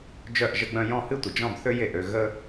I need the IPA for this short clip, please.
d͡ʒ œ˥˨ ʔ ʒ ə˥ ɡ͡b œ̃˥ j ɔ̃˥˨ h ɨ˥ tʷ ə˨ d͡ʒ ɔ̃˥˨ b θ ø˥ j e˨ ʔ ø˥˨ ɣ ə˥

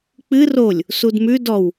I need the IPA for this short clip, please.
k͡p ɨ r o lʲ | s u d m ʉ d ɔ w

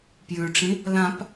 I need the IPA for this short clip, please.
p j ʉ ʈ͡ʂ ĩ | l ã p

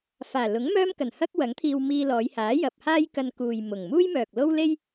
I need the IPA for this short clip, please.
f aː˨˩ l ʊ˨˥ ŋ m œː˥ m k ɐ˨˩ n h ɐ˥ k̚ w ɐ˨˥ ŋ t̪ʰ iː˧ w m iː˧ l ɔː˨˧ j h aː˨˥ j ɐ˨ p̚ h aː˥ j k ɐ˧ n k uː˨ j m ʊ˨˩ ŋ m uː˥ j m œː˨ k̚ l o˥ w l e˥ j

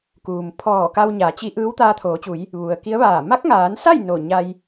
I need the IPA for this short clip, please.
k uː˩ m pʰ ɔː˧˩ k a˧ w ɲ aː˩˧ t͡ɕ i˧˥ ʔ ɯː˧˥ w t̪ aː˧ t̪ʰ oː˩˧ t͡ɕ u˩˧ j | ʋ u˩ ə̯ k i˧˥ ə̯ ʋ aː˧˩ m a˧˥ k̚ ŋ aː˩˧ n s a˥˨ j n o˧˩ ɲ a˧ j

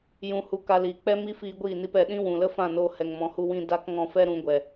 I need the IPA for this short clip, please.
j ũ˧ h u˧ k a˧ l iː˨ k͡p ɛ˦ m i˦ f iː˧ ɡʷ iː˦˨ n i˧ p ɛ˨ ɗ ĩ˦ w ũ˨ l ə˦ f ã˦˨ n oː˧ h ɛ˨ ŋ m ɔ̃˨ h u˧ w ĩ˧ d a˦ k ŋ ɔ̃˧ f ɛ˦ ɾ ũ˨˦ ɡʷ ɛ˨

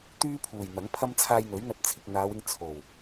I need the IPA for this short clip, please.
t̪ yː˥ pʰ uː˨˩ j n̪ ɐ˨˥ ŋ pʰ ɐ˥ m t͡sʰ aː˧ j n̪ ɵ˨˥ ɥ n̪ ɐ˧ t̚ t͡sʰ ɪ˨ k̚ n̪ aː˨˧ w ɪ˧ ŋ t͡sʰ o˨˩ w

